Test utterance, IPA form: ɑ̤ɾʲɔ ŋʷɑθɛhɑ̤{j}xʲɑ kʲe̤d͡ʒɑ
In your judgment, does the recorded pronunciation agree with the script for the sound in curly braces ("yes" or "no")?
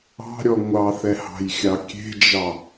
yes